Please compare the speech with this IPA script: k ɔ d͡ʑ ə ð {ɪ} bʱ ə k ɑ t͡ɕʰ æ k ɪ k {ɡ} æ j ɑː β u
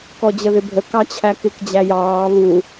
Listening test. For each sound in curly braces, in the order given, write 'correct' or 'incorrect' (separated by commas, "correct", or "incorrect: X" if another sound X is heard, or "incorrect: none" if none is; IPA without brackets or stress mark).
correct, incorrect: d͡ʑ